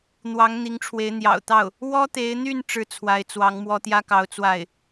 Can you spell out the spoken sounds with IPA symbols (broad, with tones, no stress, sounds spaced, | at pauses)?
n̪ w ɑ˧˥ ŋ n̪ i˧˥ ŋ ʈ͡ʂʰ w e˧˥ ɪ̯ n̪ j ɑ̰˨˩ ʊ̯ t̪ ɑ˥˩ ʊ̯ | w ɔ˥ t̪ e˧˥ ɪ̯ n̪ y˥˧ n ʈ͡ʂ ɻ̩˥˩ t͡sʰ w a˧˥ ɪ̯ t͡s w ɑ˧˥ ŋ m w ɔ˥ t̪ j ä˥ k ɑ˧˥ ʊ̯ t͡s w a˥˩ ɪ̯